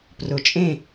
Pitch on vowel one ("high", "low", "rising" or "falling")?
low